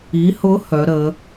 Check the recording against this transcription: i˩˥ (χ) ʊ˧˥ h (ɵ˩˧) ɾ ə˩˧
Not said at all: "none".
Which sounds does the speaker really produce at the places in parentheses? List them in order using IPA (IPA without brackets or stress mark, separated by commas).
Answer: h, œ˩˧